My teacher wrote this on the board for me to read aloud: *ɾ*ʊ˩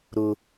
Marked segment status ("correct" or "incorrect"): correct